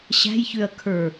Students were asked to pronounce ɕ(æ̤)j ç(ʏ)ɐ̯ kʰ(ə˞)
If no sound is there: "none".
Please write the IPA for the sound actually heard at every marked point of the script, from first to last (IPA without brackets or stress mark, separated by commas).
æ̤, ʏ, ə˞